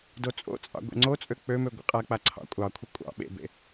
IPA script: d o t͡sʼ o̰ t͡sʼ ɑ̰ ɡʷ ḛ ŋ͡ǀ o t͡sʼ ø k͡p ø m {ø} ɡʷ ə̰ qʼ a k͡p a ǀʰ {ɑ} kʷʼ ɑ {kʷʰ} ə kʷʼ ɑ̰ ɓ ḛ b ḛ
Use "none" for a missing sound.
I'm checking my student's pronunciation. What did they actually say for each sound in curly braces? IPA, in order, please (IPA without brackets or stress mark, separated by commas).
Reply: ø, ɑ̰, kʷʰ